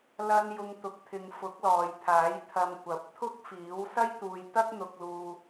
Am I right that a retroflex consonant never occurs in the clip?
yes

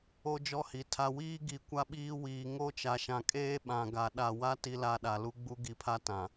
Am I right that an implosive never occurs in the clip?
no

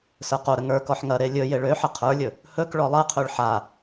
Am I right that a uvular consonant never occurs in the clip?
no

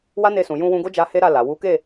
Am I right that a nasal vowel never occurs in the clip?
no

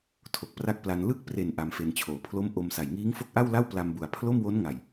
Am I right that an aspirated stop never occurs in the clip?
no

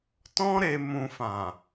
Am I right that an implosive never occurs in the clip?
yes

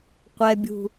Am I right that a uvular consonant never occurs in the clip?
no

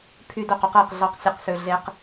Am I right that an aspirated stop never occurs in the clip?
no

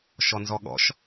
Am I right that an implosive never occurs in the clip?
no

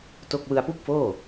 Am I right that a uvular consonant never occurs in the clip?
yes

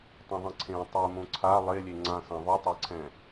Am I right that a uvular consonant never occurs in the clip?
yes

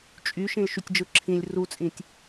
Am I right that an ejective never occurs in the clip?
no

